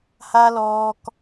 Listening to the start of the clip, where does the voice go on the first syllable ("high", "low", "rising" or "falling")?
high